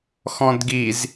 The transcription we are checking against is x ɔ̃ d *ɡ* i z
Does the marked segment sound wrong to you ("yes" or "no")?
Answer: no